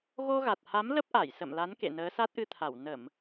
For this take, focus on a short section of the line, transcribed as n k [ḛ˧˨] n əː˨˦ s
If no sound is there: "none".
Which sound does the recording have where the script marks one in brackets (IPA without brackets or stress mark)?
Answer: ḛ˧˨